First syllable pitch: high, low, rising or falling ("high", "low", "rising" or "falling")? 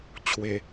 low